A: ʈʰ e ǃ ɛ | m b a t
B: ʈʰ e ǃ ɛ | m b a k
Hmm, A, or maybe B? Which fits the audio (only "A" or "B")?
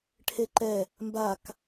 B